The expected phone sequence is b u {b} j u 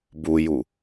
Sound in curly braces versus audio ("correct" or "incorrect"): incorrect